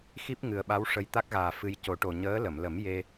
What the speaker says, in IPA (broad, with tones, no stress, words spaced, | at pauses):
xi˦˥p̚ŋɨ˨˩ə̯ɓa˧˥w ʂə˧j t̪a˦˥k̚ɣaː˨˩ fɨ˧j co˨˩˦ʈo˨˩ ɲəː˧˥lə˨˩˨m lə˨˩˦mje˧